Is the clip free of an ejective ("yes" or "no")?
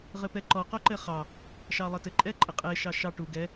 no